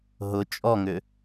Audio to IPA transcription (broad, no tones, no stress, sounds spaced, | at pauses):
ɦ ʊ t͡ʃʼ ɔ ŋ ʏ